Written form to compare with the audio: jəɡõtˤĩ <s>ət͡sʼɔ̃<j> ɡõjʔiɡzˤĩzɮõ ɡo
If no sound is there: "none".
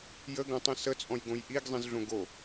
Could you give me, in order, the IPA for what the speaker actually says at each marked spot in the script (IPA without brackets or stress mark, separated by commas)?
s, j